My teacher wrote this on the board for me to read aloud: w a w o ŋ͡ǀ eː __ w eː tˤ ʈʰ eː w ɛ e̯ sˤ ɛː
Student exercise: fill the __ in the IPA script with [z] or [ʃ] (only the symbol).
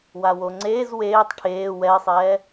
z